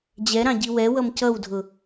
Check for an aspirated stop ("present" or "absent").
absent